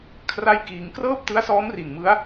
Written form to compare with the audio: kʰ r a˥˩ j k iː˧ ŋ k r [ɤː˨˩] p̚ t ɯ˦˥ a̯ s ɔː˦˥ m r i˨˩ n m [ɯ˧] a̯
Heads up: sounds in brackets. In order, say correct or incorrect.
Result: incorrect: ɤː˥˩, incorrect: ɯ˦˥

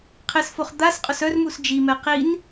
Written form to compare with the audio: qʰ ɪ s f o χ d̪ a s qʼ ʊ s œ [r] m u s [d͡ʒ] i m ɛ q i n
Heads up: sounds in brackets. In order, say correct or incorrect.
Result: correct, correct

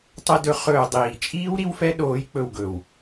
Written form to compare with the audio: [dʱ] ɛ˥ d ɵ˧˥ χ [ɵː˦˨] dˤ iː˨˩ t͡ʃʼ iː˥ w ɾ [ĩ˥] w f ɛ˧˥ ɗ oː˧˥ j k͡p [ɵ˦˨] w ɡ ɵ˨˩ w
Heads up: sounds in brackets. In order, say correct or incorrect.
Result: incorrect: tˤ, correct, incorrect: i˥, correct

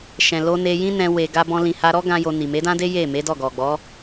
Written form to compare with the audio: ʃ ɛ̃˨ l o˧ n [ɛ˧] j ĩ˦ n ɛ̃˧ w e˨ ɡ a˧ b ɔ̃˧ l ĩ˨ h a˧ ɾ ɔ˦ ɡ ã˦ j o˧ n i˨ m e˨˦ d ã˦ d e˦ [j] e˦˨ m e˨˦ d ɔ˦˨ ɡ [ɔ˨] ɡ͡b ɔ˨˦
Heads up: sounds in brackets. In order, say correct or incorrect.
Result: incorrect: e˧, correct, correct

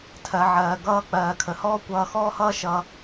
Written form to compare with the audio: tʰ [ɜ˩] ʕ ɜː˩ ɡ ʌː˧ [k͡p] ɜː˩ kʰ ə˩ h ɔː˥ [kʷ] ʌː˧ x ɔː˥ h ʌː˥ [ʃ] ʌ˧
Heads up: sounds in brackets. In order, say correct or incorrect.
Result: correct, correct, correct, correct

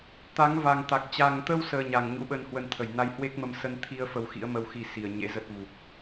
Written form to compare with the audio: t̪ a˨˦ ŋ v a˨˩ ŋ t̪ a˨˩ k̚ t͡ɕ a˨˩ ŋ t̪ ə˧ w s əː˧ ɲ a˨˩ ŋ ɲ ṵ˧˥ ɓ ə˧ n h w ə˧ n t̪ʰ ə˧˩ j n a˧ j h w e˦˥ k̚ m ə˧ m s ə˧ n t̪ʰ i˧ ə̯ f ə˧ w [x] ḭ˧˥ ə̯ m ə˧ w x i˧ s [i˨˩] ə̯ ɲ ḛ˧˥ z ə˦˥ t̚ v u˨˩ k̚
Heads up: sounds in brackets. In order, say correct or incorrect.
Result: correct, correct

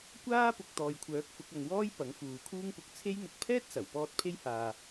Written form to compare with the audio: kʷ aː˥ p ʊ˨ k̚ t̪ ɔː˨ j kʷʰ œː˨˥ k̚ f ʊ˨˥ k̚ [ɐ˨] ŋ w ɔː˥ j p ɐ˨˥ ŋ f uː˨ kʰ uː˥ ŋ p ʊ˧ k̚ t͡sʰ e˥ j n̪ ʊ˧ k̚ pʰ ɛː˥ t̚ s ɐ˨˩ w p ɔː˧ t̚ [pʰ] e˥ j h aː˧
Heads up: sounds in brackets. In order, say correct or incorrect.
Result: correct, correct

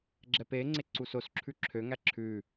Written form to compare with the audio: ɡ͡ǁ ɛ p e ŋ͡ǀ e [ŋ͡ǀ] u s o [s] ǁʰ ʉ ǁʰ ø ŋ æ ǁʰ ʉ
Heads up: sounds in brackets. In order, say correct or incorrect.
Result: incorrect: ǀ, correct

